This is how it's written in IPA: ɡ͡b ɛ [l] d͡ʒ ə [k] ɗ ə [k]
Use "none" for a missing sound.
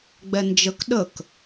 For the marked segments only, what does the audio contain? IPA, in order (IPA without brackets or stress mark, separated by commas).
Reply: n, k, k